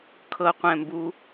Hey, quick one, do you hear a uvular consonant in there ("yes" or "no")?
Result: yes